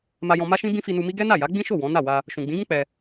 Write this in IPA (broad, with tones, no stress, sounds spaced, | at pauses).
m a˧ j ɔ̃˧ m a˦ ʃ ĩ˦ b ĩ˦ f i˧ n u˧ m i˦ ɡ ɛ˦ n a˦˨ j a˨˦ ɡ͡b ĩ˦ ʃ o˦˨ w ɔ̃˨˦ n a˦˨ w a˧ | ʃ ũ˨ ɡ͡b ĩ˨˦ ɡ ũ˦ k͡p ɛ˧